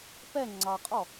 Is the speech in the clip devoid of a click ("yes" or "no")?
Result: no